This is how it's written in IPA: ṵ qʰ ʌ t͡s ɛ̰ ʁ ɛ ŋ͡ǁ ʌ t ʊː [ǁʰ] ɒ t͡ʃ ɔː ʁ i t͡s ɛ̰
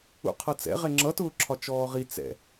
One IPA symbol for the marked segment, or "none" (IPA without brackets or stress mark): ǁʰ